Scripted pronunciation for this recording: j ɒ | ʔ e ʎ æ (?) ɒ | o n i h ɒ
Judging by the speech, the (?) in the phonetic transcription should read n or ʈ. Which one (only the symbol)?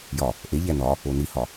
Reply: n